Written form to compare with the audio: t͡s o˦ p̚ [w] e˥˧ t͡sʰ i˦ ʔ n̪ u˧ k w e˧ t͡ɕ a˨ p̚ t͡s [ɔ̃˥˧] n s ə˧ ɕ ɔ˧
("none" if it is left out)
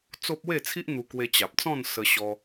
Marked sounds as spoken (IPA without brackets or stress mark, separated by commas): w, ɔ̃˥˧